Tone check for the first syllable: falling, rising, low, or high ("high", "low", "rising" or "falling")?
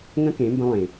high